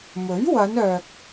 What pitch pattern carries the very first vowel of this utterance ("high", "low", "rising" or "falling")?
rising